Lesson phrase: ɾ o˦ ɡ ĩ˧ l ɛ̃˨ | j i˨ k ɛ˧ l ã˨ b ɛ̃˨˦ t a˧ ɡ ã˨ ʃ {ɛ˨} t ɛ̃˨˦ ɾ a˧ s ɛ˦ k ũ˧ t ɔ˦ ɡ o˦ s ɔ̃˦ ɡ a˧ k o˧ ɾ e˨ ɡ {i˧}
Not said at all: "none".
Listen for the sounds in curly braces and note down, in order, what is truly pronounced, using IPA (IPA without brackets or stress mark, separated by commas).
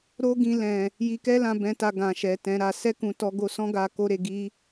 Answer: ɛ˨, i˧